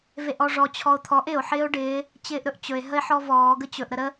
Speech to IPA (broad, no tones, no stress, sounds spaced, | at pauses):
v e ʔ ɔ ʐ ɔ t͡ɕʰ ɔ o̯ t̪ʰ ɔ ʔ ɪ o̯ ħ ɪː o̯ ɖ ɪː | t͡ɕ ɪː ʔ ɾ ɵ ʔ t͡ɕ ɵ e̯ ɦ ə e̯ ħ ɔ v ɔː ɡ ə t͡ɕ ɵ ʔ ɾ ə ɾ ə